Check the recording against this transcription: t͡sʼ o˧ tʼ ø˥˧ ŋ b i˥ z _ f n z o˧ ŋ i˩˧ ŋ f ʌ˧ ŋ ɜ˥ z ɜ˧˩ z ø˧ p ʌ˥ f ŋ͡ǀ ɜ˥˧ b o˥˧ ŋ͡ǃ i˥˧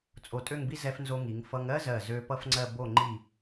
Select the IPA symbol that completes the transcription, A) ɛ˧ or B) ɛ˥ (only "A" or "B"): A